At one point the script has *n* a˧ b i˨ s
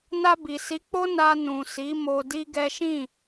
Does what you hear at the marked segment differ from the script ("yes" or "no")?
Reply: no